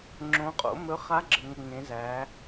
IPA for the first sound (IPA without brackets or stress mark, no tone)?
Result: ŋ͡ǁ